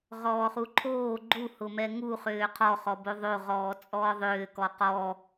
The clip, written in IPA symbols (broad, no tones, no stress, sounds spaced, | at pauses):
ʁ ɔː χ u ǃʰ oː ɡ͡ǃ u h ʊ m ɛ ŋ u χ ʏː qʰ ɔ χ ɔ b o ðˤ o ʁ ɔː t͡sʼ ɔː ðˤ ʏː k ɔ q ɔ